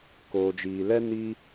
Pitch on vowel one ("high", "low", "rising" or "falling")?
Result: low